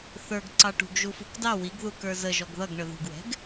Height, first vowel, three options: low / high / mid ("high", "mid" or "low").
mid